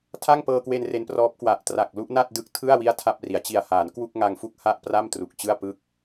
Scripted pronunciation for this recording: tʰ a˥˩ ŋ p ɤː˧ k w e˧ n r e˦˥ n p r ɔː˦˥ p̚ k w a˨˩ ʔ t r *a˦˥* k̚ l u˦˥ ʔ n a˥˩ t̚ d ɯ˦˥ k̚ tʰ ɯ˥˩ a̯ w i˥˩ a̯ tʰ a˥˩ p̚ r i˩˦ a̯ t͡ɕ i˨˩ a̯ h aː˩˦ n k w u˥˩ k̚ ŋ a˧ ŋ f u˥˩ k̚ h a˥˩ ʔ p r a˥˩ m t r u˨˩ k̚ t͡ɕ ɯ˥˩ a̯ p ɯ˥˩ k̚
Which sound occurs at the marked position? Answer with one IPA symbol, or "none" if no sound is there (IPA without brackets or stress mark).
a˨˩